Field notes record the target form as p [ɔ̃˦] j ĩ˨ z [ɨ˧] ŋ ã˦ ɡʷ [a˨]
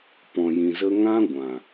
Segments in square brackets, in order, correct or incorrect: incorrect: ɔ̃˨, incorrect: ə˧, incorrect: ã˨

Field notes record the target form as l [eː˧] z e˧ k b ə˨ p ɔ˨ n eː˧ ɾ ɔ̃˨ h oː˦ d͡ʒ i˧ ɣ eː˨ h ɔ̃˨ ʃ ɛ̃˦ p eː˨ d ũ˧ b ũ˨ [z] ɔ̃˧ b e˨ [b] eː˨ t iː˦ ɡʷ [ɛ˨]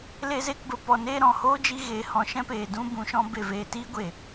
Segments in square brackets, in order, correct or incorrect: incorrect: e˧, incorrect: ʃ, incorrect: v, incorrect: e˨

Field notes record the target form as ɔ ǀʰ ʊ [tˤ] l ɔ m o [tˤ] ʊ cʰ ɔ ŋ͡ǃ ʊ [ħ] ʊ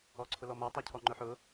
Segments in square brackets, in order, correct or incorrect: incorrect: none, correct, correct

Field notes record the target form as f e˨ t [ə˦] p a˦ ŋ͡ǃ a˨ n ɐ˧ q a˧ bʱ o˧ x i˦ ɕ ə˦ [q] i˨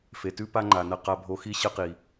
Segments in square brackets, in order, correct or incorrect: incorrect: ʉ˦, correct

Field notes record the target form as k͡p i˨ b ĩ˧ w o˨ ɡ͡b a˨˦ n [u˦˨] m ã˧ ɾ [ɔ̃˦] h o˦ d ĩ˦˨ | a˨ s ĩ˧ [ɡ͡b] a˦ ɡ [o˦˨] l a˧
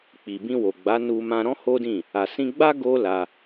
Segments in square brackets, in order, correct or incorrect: incorrect: u˧, correct, correct, incorrect: o˦

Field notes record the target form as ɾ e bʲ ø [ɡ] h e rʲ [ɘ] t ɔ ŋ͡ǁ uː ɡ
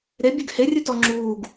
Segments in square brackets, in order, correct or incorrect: correct, incorrect: ʉ

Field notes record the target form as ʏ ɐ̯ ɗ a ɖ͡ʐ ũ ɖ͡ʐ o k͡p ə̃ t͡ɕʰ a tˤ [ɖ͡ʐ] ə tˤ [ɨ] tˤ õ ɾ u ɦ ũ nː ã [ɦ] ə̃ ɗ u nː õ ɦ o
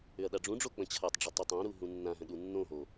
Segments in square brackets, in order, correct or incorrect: correct, incorrect: ʏ, correct

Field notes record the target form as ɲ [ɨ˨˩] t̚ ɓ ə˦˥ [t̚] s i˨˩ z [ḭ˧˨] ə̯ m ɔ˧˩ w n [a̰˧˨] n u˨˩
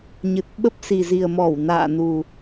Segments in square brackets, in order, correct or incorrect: correct, incorrect: p̚, incorrect: i˨˩, incorrect: a̰ː˧˨

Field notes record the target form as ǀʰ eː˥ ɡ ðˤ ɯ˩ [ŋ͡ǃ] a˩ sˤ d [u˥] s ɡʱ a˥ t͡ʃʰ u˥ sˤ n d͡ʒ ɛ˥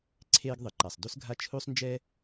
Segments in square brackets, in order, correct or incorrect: incorrect: ǃ, correct

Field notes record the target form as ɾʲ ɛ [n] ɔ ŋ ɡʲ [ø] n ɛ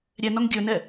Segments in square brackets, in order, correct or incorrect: correct, incorrect: ɵ

